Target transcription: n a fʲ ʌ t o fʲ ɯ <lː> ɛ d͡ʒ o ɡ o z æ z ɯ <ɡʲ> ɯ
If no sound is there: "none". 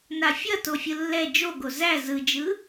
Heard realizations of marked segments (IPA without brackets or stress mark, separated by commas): lː, d͡ʒ